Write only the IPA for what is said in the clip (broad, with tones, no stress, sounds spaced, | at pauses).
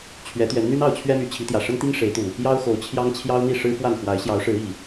t͡ɕʰ ɥ ɛ˨˦ t̪ ɥ ɛ˨˦ n n̪ y˦ n ɑ˥˨ ʊ̯ t͡ɕʰ ɥ ɛ˦ m y˨˦ t͡ɕʰ i˨˦ t̪ j ä˨˩ ʂ ə˦ n t̪ i˦ ŋ ʂ e˨˦ ɪ̯ t̪ u˨˩ | j ɑ˦ ʊ̯ x o˨˦ ʊ̯ t͡ɕʰ j ɑ˦ ŋ t͡ɕʰ j ɑ˦ ʊ̯ n̪ i˥˨ ʂ ɻ̩˦ f w a˥˨ n x w a˨˦ ɪ̯ ɕ j ɑ˨˦ ʊ̯ ʂ ɻ̩˨˦ i˨˩